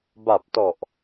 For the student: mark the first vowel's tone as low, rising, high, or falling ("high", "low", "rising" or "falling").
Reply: low